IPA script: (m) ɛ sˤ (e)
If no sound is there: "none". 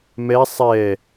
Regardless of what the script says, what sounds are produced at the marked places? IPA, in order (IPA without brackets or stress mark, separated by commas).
m, ɛ